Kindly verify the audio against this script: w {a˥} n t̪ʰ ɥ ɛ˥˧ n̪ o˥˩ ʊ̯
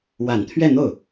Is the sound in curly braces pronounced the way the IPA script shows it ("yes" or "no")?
no